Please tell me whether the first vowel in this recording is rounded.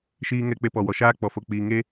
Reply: no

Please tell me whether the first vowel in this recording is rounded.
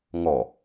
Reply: yes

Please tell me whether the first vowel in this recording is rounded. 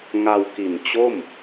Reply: no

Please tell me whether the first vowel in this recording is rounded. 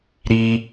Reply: no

